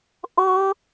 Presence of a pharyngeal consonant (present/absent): absent